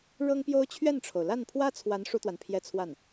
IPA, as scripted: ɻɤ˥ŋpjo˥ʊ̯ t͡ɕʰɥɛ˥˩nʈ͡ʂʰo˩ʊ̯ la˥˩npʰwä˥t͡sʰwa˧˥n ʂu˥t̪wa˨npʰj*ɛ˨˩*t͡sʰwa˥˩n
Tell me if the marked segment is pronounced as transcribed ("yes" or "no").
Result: no